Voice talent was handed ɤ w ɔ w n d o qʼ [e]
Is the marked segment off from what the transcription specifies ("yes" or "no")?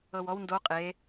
no